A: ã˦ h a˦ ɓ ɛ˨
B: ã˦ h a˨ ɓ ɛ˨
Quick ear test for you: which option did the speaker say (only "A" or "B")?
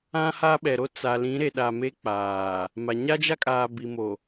A